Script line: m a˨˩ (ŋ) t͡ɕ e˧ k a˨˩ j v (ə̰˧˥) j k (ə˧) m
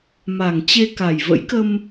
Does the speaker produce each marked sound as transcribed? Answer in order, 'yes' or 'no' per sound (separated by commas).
yes, yes, yes